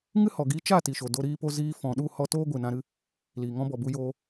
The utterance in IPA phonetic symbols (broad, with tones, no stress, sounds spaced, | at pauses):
ŋ ɨ˦ h ɔ˨ ɡ i˦ t͡ʃ a˦˨ t i˨ ʃ o˨ d o˧ ɾ iː˧ p o˧ z iː˧ f ɔ̃˨ ɗ u˦˨ h ɔ˦ t oː˦ ɡʷ ɨ˨ n ã˧ ɾ ɨ˧ | l iː˨ ŋ ɔ̃˧ b ɔ˨ b u˦ j oː˦